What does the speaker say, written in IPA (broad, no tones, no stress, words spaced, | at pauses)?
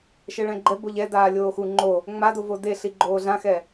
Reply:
ʃɛɭɛ̃ɡ͡ǃɛ boʎɛdaː lʲoːxu ŋ͡ǃo | ŋ͡madovo deɬi ɡ͡ǃoːɮãxɛ